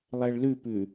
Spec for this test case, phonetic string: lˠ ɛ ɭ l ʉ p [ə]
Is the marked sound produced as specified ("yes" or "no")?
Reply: no